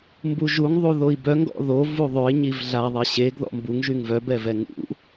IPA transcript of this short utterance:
m b u ʒ u ŋ ðˤ u ð o i̯ b œ ŋ ɡ ɔ̰ ð o v u ðˤ ø i̯ ɲ i v ɮ a ðˤ i ɕ e ɡ ð ɔ̰ m b u ŋ ʒ y ŋ v œ b ɛ v ɛ ŋ ṵ

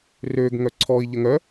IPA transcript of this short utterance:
r ø ɡ ŋ œ ǀʰ ɔ i̯ ʎ ə ŋ œ

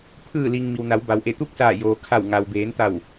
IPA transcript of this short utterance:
pʰ ɯː˧˩ l i˩ ŋ m i˩ w n a˩˧ w b a˩ w ʔ e˧˩ t̪ u˥˨ k̚ s aː˧˩ j oː˩ kʰ a˧˩ w ŋ a˩ w b eː˩˧ n t̪ a˧˩ w

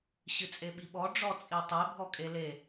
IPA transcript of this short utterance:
ɕ ɨ t͡sʼ e ɓ i ɓ ɔ ɖ͡ʐ ɔ t͡sʼ i tˤ e bʱ ɔ kʼ e l e

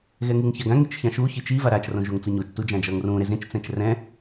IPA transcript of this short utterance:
ɣ ɛ ŋ ɯ ŋ ç a ɡ ã ŋ i t͡ʃ ç ã ʃ u ç i t͡ʃ i v a ɾ a t͡ʃ r õ ʒ o ŋ t͡s ɯ ɲ o t͡ʃ t u d͡ʒ ã d͡ʒ ʌː ŋ r ũː ɾ e z ẽ t͡ʃ t͡s ɛ̃ t͡ʃ r ɛ̃

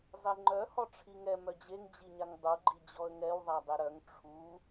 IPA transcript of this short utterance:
zˤ e ŋ͡ǃ œ h ɔ ʈ͡ʂʰ i ŋ ɛ m œ d͡ʑ e ŋ d͡ʑ i ɲ a ŋ dˤ u ɡ͡ǃ i d͡ʑ ɔ ə̯ ŋ ɛ w ðˤ a dˤ e ɾ œ ŋ ʈ͡ʂʰ u

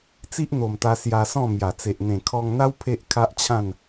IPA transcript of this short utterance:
t͡s i˦ ʔ n̪ o˨˩ m t̪ a˧ s j a˧ s ɔ̃˥˧ m j a˨˩ t͡s e˨ ʔ n̪ ẽ˨˩ kʰ ɔ˧ ŋ n̪ a˦ w pʰ e˦ ʔ kʰ a˦ ʔ t͡ɕʰ ã˥˧ n

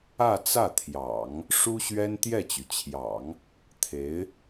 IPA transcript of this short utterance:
ä˥˧ t͡s ä˥˩ t̪ʰ j ɑ̰˨˩˦ ŋ | ʂ u˥ ɕ ɥ ɛ˥ n t̪ j ɛ˥˩ t͡ɕ y˩ t͡ɕʰ j ɑ̰˨˩˦ ŋ | t̪ʰ e˧˥ ɪ̯

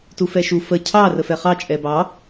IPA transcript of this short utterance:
t u f ɛ ʃ u f ə cʰ ɑ r ə f ɛ χ ɑ t͡ʃʼ ɛ b ɑ

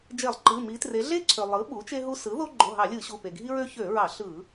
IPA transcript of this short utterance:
d͡ʒ e˧˩˧ lˠ ǃ ɯ˩˧˩ m i˩˧ t r e˩˧ ɮ e˦ ǀʰ ø˩ lˠ ɯ˩˥ ɓ u˩˥ t͡ʃ e˦ ɦ u˦ s ɯ˩˥ ð o˦ ɡ͡ǃ o˩˧˩ ɦ ɑ˧˩˧ lʲ ɯ˧˩˧ ɕ u˩˧˩ p e˩ ɡʱ i˦ ɹ ø˦ ç ø˧˩˧ ɹ ɑ˧˩˧ ɬ ɯ˧˩˧

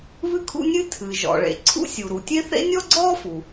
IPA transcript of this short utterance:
β ɨ˥ kʰ ṵ˥ nʲ ɨ˥ tʰ ɨ˩ ʒ ɔ̰˩ ɭ ḛ˩ ǀʰ ṵ˥ sʲ u˩ ɾ u˩ tʲ e˥ θ ḛ˥ nʲ ɔ˥ ɡ͡ǀ ɔː˥ f u˩

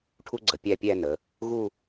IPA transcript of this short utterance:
ʈʰ u˥ ɡ͡ǀ ə˩˧ pʲ æ˥˩ pʲ æ˥˧ n ə˩˧ | ɣ u˥˧

